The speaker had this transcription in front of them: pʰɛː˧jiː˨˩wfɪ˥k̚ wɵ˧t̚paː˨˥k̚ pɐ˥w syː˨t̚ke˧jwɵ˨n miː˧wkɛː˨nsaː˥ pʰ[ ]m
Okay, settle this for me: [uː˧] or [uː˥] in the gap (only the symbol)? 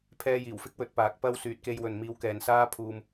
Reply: uː˧